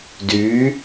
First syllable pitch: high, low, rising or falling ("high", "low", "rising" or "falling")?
rising